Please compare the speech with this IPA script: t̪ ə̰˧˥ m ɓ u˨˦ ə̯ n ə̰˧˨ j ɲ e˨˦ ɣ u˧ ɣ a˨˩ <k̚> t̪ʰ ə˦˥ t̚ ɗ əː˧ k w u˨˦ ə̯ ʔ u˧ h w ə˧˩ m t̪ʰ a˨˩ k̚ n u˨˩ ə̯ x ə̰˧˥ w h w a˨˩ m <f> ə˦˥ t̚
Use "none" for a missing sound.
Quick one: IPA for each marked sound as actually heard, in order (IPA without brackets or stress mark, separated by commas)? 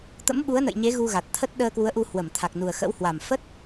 t̚, f